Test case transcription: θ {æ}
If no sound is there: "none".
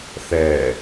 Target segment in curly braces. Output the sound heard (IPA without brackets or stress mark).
ɛ